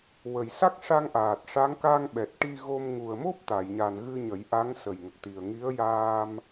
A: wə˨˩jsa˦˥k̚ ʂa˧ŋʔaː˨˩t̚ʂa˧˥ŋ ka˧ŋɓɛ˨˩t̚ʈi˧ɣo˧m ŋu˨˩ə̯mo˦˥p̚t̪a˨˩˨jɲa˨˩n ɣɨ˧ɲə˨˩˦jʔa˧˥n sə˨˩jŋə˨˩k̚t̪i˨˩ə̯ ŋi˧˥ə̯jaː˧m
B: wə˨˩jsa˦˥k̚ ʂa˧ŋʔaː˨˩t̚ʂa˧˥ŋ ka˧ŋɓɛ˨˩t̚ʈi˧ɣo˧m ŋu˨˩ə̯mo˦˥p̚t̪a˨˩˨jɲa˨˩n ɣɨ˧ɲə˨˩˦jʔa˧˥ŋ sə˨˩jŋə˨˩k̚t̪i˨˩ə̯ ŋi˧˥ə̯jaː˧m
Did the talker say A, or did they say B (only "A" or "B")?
B